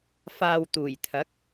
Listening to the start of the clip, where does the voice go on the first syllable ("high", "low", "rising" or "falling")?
low